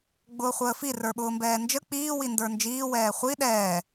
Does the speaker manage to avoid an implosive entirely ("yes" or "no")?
no